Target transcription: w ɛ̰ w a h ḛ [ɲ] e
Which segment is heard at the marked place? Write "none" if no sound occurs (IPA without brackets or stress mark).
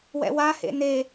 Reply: n